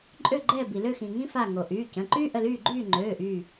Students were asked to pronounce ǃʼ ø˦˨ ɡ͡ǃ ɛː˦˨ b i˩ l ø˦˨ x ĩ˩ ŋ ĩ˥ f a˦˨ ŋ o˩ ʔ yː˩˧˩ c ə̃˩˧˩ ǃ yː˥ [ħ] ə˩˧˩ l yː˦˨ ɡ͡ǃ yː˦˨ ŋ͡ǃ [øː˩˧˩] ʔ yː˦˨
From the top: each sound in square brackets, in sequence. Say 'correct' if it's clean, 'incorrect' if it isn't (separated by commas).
incorrect, correct